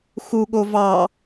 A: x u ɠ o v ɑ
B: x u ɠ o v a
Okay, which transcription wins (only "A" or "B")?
A